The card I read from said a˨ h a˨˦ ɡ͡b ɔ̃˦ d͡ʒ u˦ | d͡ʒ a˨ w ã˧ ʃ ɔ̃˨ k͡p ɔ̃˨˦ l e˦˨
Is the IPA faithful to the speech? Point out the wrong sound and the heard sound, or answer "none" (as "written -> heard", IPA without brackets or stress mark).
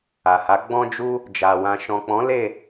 none